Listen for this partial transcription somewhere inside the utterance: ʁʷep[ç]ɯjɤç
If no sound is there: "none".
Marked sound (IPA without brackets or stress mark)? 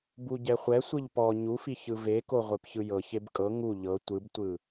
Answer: ç